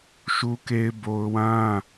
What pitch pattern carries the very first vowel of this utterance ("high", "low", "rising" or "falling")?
high